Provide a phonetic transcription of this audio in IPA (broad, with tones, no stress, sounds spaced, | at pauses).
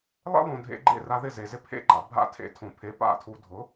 lˠ ḛ˥ lˠ õ˩ dʱ ḛ˧ ɡ͡ǃ ḛ˥˩ r a˧ ð ɪ˥˩ z e˩ z ɪ˥ pʰ ḛ˥ ɡ͡ǃ a̰˩ bʱ a̰˥˩ tʰ ḛ˧ tʰ õ˩ pʰ e˩˥ p a̰˥˩ tʰ u˧ dʱ ʊ˩˥